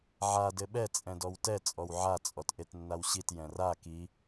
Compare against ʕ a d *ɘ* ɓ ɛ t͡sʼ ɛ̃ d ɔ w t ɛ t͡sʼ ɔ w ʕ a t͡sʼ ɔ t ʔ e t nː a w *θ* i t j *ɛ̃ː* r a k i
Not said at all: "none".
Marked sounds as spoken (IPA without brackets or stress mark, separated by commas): ɘ, ɕ, ɛ̃